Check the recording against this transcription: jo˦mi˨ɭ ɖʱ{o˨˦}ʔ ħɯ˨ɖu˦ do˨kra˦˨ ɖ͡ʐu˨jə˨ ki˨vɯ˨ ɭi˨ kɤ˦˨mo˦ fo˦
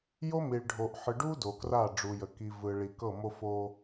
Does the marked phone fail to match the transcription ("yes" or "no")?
yes